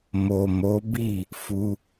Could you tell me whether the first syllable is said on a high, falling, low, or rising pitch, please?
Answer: low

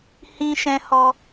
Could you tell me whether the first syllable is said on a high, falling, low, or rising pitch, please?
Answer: high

